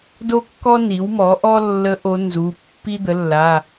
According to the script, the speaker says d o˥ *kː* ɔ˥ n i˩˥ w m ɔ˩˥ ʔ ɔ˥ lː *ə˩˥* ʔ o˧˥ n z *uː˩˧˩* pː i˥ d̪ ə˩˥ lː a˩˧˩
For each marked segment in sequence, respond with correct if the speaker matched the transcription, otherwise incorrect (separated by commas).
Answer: correct, incorrect, incorrect